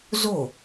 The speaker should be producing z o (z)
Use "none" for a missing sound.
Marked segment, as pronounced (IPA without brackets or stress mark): none